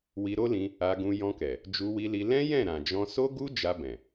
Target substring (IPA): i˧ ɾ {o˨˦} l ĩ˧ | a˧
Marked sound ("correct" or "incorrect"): incorrect